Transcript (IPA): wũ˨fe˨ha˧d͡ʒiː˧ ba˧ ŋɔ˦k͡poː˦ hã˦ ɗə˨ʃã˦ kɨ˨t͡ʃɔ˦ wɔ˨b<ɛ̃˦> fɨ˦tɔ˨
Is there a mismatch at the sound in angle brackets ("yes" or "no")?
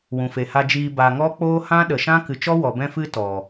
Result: no